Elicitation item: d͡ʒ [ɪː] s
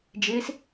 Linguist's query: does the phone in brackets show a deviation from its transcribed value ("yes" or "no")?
no